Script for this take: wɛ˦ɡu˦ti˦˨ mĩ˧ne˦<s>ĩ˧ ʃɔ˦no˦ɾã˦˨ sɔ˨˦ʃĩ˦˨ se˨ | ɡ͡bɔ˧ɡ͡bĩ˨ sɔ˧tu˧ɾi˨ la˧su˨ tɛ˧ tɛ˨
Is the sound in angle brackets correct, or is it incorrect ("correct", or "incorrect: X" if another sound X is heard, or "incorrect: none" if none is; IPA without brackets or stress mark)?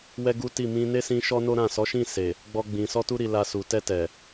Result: correct